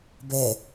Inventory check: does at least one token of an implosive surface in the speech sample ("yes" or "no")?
no